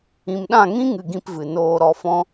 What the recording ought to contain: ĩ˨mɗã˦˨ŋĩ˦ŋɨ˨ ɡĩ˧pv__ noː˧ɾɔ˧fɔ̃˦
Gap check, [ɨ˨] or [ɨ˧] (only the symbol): ɨ˨